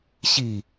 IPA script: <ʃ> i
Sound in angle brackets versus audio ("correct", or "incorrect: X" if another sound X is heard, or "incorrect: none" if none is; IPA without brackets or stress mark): incorrect: ɕ